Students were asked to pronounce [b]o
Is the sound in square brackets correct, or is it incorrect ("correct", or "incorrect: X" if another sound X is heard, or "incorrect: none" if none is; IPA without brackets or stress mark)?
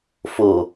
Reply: incorrect: f